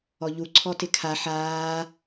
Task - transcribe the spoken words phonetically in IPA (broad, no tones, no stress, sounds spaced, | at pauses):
ɔ ʎ u ǀʰ ɔ t ɪ kʰ a ħ aː